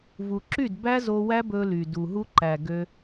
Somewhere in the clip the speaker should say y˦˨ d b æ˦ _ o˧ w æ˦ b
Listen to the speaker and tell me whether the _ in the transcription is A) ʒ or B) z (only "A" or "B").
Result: B